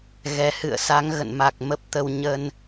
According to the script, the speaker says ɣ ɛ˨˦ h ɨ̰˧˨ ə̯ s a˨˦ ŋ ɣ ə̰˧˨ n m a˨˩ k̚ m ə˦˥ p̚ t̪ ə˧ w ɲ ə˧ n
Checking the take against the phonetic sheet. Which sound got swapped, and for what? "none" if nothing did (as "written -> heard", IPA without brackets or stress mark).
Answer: none